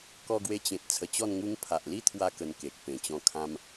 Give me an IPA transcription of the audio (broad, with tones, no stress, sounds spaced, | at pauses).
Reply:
k ɔ˧ ɡ w e˧ t͡ɕ ẽ˨ t̚ t͡sʰ ə˧ t͡ɕ ɔ˥˧ n ŋ u˦ ŋ pʰ a˨ ʔ l i˦ t̪ʰ w a˧ k ə˧ n k e˨ k̚ p ẽ˨˩ t͡ɕ ɔ̃˧ kʰ ã˧ m